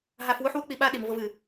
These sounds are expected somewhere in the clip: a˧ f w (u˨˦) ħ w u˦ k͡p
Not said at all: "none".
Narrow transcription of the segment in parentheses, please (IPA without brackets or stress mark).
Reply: u˦